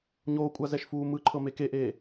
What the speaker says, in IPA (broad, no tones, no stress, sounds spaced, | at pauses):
ɲ oː kʷʼ a z ɛ ʃ f uː m ɯ ǃʰ ɤ m e k e ʔ eː